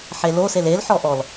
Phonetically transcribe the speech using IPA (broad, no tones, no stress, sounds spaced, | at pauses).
ħ e l o s e l e l ħ ɔ ʔ ɔ l